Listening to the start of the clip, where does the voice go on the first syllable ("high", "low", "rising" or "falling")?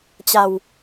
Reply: low